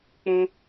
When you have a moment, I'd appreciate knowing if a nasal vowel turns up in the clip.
yes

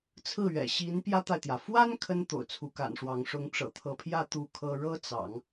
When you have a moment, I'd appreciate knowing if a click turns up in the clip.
no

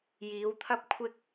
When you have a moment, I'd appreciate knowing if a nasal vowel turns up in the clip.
no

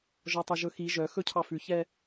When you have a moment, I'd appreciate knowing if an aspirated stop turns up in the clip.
yes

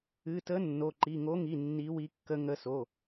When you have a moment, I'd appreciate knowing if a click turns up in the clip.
yes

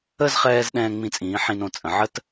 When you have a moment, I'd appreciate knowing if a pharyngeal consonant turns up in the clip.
yes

